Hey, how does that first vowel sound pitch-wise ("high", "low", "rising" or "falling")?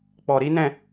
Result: low